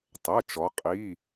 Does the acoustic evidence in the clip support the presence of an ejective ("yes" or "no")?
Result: yes